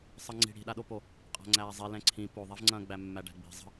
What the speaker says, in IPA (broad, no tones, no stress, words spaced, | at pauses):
sˤəŋ͡ǀi̤ ɽi̤ɗaɗopo | qʼa̤ŋ͡ǀæːzˤi lɛ̃ǀʰĩ poðˤɛvŋ͡ǀɐ̃ːɡ͡bæ mːæɖæ̤ɡ͡bi̤ zˤə̤